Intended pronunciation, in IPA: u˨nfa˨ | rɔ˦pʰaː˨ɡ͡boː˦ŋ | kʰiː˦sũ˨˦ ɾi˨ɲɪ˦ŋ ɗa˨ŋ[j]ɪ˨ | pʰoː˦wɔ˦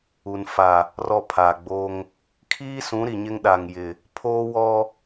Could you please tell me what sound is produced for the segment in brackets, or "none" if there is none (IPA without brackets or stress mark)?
j